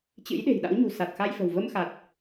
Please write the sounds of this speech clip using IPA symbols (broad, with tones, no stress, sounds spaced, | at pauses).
t͡ɕ ɨ̰˧˥ j ɗ e̤˨˩ j ɗ a̰˧˥ w ɲ ṳ˨˩ s a˨˩ t̚ x a˧ j f ə̤˨˩ w v ə˧ m x a˨˩ t̚